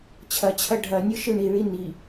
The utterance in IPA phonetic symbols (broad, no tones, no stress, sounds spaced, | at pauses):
t͡ɕʰ ɐ t͡ɕʰ ɐ ɖʱ ɐ nʲ ɯ ʃ ɯ ɳ i ɭ i n i